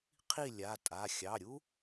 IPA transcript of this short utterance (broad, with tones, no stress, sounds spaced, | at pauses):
qʰ i˥˨ lʲ a˩˧˩ tʼ a˩˧˩ xʲ ɑ˩˧˩ ɾʲ u˥